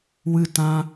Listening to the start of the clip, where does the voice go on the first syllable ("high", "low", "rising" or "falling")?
falling